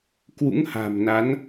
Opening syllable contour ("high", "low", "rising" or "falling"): rising